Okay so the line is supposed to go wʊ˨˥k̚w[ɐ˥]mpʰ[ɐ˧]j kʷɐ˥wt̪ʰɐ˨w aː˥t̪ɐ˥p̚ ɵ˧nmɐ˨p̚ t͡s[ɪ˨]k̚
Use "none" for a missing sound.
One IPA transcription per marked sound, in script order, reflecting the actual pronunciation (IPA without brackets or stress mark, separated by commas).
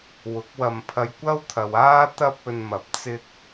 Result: ɐ˧, ɐ˧, ɪ˥